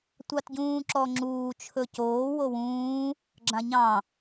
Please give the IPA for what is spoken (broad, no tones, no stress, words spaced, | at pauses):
tʷɑtɟũːǁɔŋ͡ǁuː t͡ʃʰɵcoː wowũː | ɡ͡ǁãɲɑ̃